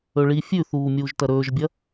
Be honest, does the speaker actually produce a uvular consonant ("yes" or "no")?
no